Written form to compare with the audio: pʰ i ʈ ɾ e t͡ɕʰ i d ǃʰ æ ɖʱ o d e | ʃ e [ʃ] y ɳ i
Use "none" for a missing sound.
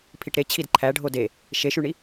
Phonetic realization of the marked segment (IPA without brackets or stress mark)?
ʃ